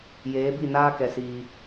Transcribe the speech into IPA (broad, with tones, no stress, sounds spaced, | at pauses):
j eː˨˦ b i˦˨ n aː˦ k ɛ˧ s iː˧